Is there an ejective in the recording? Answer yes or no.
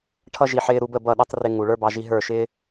no